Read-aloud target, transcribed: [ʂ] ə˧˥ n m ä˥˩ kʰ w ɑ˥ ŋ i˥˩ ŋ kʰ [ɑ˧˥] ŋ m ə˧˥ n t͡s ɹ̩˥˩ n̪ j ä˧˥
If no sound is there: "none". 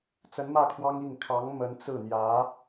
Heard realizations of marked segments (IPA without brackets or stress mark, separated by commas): t͡s, ɑ˧˥